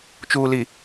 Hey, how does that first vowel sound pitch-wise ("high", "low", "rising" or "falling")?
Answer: low